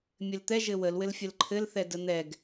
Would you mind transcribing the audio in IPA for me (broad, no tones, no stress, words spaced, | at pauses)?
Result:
mʲɘlt̪ɛ ʒɘwəl wɘlfʲəlǃʰɘl θɛdən̪ɛɡ